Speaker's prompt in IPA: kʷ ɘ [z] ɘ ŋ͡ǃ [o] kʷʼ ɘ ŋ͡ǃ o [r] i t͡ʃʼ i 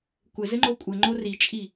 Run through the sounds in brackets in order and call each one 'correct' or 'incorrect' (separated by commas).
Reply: correct, correct, correct